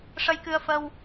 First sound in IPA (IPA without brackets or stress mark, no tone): ʂ